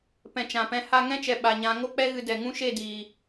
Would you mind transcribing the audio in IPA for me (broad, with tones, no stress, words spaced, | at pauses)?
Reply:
pɛ̃˨ t͡ʃã˨pɛ̃˧ ha˧ŋɛ̃˦t͡ʃɛ˨ ɓa˨ɲã˨˦ ŋo˦k͡pɛ˦ɣɨ˧ dɛ˨ŋũ˦ʃe˦˨diː˨